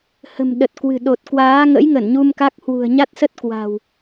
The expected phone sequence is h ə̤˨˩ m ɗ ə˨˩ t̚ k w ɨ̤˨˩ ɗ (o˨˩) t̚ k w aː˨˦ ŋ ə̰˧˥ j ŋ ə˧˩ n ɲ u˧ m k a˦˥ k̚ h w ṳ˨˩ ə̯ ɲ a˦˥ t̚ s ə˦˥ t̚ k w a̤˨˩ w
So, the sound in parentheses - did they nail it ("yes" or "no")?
yes